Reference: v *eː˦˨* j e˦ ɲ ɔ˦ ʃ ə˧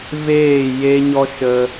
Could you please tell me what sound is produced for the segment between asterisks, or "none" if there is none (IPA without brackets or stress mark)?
eː˦˨